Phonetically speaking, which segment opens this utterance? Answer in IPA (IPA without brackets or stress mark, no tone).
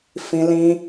f